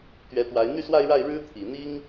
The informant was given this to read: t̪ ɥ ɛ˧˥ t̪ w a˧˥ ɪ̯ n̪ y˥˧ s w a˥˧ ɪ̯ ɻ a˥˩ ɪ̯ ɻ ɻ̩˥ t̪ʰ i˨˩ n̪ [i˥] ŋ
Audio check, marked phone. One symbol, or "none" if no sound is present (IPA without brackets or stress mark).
i˥